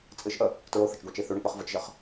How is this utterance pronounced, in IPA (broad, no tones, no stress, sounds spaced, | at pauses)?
t͡sʼ ɨ ʃ ʔ ə | t ɹ o θ ə t͡ʃ ɡʷ e t͡ʃ i θ ʉ ɳ ə k͡p ə χ v ə t͡ʃ ʒ ə χ